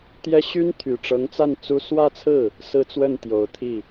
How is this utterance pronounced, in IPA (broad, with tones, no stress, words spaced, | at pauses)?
t̪jɛ˥ ɕy˥nt̪ʰy˨˩ʈ͡ʂɤ˧˥ŋt͡sa˥˩n t͡su˥ swä˥˧t͡sʰɹ̩˥˩ | sɹ̩˥t͡swə˥˩nt̪jo˨˩ʊ̯ t̪ʰi˥˩